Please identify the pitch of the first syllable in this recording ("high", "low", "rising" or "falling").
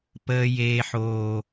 high